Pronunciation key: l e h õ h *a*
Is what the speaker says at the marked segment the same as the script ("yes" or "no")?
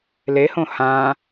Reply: no